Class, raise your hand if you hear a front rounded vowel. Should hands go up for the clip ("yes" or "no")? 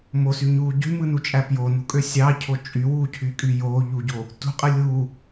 yes